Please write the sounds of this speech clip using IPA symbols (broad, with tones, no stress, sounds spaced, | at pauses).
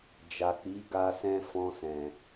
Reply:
d͡ʒ a˨ k͡p i˨˦ ɡ a˧ s ɛ̃˦ f ɔ̃˧ s ɛ̃˨